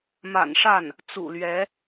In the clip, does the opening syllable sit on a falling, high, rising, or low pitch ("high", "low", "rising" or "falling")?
low